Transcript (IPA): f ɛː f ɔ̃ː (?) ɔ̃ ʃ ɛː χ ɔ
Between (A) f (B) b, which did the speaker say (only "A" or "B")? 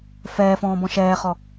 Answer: B